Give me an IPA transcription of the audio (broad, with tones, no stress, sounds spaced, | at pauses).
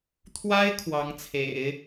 t̪ʰ w a˥ ɪ̯ kʰ w ɑ˧˥ ŋ t͡sʰ ḛ˨˩˦ ɪ̯